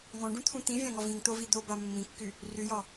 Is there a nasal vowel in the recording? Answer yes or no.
yes